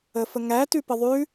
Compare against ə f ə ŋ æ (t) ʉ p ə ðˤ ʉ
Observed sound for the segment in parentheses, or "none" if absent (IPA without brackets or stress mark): t